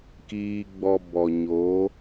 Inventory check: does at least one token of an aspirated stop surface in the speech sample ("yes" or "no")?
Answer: no